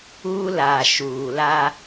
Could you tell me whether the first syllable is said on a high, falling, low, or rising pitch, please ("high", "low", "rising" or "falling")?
high